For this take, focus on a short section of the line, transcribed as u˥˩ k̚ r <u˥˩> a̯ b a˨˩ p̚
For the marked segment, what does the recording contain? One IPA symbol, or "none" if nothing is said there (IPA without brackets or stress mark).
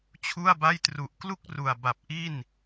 u˨˩